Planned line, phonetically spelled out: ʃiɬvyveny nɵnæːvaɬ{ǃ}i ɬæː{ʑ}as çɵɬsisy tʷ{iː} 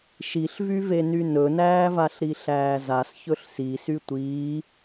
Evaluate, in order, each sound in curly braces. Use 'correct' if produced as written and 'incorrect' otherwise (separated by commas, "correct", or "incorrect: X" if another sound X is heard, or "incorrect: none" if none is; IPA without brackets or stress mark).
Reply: incorrect: ɾ, incorrect: z, correct